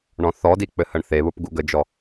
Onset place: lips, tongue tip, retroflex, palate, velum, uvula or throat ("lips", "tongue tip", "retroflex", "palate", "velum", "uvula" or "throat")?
retroflex